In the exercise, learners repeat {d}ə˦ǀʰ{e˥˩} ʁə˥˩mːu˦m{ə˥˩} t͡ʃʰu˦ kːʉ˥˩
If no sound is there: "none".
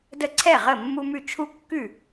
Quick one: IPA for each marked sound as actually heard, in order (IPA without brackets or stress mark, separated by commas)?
d, ɛ˥˩, ʉ˥˩